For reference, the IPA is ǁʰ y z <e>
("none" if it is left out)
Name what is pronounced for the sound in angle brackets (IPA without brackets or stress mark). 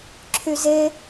e